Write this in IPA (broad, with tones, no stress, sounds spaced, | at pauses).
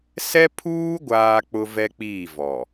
s ɛ˦ pʰ uː˦ ɡʷ aː˦ k͡p ʊ˦ v ɛ˦ k͡p iː˦˨ v ɔ˨